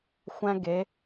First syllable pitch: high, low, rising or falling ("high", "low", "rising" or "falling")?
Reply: high